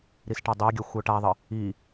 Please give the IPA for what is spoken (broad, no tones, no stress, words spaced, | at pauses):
ɾisʈadˤæɡʲœ xʷœʈaðˤə | i